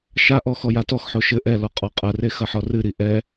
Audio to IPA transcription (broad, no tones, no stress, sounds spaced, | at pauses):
ʃ a ʔ ɔ x ɔ j a t ɔ x ħ o ʃ ɘ ʔ ɛ l ɔ qʼ ɔ qʼ ɐ r e x ɐ ħ ɔ r ɨ ɾ i ʔ ɛ